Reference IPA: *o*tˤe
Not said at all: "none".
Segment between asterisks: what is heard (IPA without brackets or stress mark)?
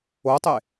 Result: o